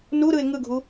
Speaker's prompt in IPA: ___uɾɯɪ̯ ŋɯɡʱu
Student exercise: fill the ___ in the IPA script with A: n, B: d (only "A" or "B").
A